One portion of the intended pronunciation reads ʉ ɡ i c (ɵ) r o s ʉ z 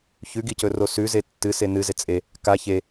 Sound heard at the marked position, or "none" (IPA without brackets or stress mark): ɵ